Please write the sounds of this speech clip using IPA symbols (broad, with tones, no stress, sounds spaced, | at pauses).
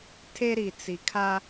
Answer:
tʰ e˦ ɾ i˨ t͡s i˨ kʰ a˦